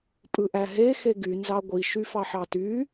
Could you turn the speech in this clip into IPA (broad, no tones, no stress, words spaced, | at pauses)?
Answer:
pʼɯʔæɦe xeɡy nzɑɡʷi ʃyfɑħɑty